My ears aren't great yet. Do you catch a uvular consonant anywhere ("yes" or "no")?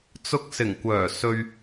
no